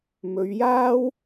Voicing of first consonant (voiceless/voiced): voiced